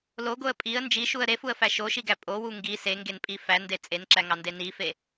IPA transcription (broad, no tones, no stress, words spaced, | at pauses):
loɡoə̯ pʼiə̯ nd͡ʒiʃuə̯ ɾefuə̯fæ ʃoʃiɡæ pʼowu ŋɡi seŋɡenpʼi fænde t͡sʼenǁæŋɑnde nife